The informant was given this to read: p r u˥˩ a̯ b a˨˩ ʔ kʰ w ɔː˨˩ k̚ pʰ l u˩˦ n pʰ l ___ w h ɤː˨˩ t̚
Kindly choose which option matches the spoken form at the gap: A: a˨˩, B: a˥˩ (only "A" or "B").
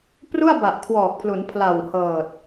A